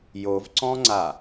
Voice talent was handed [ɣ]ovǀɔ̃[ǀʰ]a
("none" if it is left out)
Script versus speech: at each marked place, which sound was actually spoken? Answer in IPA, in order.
j, ŋ͡ǀ

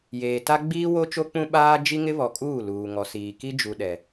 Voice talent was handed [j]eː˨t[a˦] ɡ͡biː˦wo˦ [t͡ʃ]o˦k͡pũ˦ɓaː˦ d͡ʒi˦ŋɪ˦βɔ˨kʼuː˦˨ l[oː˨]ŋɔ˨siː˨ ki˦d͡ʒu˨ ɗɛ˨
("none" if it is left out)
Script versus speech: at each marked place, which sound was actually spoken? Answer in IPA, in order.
j, a˦, t͡ʃ, uː˨

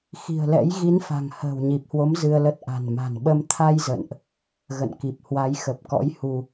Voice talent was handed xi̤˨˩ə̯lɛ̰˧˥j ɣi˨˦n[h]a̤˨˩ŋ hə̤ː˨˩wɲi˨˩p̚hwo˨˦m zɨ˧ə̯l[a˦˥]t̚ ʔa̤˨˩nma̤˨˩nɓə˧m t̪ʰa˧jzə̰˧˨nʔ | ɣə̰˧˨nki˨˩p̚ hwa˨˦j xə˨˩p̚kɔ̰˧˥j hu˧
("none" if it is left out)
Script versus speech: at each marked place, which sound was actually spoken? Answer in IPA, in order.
f, ə˦˥

